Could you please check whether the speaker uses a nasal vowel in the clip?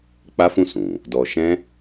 yes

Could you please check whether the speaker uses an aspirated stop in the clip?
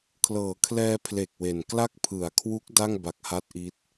yes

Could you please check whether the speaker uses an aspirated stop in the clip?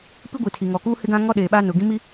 yes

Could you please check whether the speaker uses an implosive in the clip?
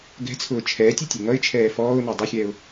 no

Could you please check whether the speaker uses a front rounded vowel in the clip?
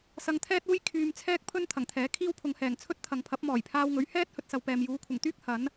yes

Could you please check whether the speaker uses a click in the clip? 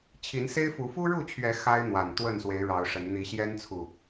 no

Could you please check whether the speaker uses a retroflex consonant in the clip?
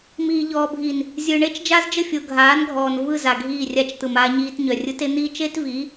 yes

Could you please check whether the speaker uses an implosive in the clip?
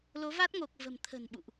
yes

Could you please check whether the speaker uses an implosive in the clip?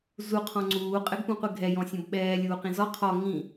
yes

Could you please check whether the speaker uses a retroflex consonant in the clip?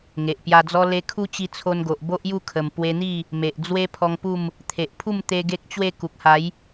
no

